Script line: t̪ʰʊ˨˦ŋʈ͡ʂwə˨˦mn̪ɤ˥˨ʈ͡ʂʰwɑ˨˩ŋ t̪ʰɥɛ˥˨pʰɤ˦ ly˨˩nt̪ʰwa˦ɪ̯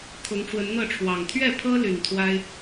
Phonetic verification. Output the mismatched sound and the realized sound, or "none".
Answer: m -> n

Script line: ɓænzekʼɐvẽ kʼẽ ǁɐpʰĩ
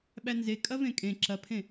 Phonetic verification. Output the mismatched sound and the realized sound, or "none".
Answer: ĩ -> ẽ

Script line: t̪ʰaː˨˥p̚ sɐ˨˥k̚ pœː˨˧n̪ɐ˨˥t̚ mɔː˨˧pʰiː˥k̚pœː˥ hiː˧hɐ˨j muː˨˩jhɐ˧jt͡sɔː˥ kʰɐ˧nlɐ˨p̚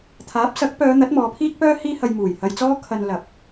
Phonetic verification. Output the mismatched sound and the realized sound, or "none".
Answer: none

